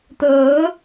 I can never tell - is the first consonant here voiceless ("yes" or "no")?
yes